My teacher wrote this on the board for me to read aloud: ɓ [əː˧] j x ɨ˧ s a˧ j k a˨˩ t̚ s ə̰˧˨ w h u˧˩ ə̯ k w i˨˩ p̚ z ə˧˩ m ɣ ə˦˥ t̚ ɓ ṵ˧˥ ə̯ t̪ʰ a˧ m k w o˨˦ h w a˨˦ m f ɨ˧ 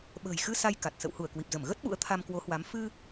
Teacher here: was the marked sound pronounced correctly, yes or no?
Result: no